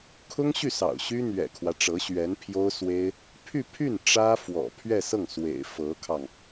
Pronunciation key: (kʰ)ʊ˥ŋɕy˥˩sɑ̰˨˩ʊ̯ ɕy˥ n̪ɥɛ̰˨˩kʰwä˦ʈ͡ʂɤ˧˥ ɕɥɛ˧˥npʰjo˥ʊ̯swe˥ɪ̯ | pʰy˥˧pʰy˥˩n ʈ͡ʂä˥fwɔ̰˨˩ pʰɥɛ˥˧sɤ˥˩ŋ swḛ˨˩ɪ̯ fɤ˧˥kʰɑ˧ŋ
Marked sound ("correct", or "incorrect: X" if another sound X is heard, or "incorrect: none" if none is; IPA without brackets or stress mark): correct